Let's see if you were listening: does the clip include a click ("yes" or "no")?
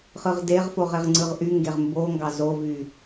yes